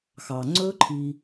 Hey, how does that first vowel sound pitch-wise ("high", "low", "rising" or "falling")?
low